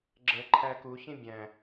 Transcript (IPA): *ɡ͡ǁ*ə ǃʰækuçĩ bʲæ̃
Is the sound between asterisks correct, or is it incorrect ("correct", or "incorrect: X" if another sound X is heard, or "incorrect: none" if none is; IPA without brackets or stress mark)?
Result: correct